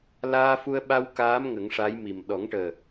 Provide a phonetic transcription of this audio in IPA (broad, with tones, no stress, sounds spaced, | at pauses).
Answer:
l aː˧ f u˧ ə̯ ɓ a˧ w k aː˧˥ m ŋ ə˨˩˦ ŋ ʂ a˧˥ j m i˨˩ m ɗ ɔ˨˩˦ ŋ ʈ əː˨˩